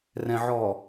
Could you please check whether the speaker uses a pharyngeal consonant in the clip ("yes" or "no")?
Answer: yes